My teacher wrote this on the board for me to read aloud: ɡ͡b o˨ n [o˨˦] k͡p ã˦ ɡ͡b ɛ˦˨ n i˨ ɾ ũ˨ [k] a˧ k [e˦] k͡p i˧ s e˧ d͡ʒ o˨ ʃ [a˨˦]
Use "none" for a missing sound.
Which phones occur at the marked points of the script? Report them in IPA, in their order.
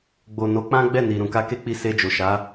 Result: o˨˦, k, e˦, a˨˦

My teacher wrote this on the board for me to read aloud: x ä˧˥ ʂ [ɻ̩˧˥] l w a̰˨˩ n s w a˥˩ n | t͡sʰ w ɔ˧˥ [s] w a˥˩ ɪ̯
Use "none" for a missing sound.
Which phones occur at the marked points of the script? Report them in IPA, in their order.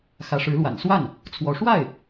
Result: ɻ̩˧˥, ʂ

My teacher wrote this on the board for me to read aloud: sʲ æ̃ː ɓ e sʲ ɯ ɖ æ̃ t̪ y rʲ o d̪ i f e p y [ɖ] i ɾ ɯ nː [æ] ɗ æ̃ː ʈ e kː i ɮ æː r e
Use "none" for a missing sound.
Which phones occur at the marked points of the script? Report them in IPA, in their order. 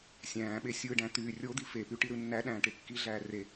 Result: ʈ, æ

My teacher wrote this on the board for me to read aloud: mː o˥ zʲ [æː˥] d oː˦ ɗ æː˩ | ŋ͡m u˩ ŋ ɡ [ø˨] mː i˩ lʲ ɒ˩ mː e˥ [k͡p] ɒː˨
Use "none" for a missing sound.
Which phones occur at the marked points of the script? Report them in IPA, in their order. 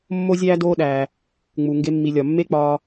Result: æː˥, e˨, k͡p

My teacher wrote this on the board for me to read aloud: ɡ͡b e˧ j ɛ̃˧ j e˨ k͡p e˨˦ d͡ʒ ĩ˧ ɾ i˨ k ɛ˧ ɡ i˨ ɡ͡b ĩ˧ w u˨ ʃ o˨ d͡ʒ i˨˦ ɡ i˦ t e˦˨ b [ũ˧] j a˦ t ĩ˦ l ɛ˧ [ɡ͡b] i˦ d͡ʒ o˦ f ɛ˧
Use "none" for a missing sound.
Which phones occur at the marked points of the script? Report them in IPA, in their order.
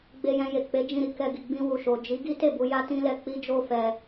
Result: u˧, k͡p

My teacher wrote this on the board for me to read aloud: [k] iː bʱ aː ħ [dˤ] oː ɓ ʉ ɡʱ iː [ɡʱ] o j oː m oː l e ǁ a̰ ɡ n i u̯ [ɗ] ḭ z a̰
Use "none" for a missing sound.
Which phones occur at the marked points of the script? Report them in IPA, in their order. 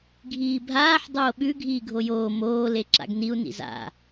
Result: ɡʱ, dˤ, ɡʱ, n

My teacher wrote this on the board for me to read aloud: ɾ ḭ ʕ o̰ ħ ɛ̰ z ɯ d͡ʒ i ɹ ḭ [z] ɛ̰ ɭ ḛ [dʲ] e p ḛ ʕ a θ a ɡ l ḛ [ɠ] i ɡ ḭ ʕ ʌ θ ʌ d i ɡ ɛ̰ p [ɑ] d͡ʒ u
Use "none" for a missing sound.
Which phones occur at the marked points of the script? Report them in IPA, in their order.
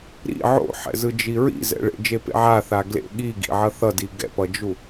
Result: z, d͡ʒ, ɠ, ʌ

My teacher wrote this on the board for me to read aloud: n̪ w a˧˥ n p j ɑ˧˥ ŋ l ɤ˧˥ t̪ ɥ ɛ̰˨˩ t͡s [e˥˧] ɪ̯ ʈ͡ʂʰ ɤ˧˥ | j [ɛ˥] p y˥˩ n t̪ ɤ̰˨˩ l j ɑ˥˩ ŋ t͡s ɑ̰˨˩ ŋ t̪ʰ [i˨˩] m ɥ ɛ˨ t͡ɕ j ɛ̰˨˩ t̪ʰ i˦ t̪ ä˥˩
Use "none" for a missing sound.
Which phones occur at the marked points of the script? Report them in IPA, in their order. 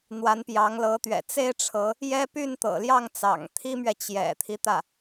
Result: e˥, ɛ˥, i˥

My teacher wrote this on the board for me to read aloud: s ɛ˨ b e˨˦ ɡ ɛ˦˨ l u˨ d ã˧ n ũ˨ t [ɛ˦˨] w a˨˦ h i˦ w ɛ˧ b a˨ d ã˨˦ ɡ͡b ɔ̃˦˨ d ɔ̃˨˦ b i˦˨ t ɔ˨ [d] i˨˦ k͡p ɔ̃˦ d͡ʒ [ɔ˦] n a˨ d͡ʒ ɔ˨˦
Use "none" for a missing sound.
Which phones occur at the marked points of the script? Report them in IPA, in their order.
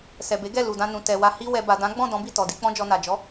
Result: ɛ˨, d, ɔ˧

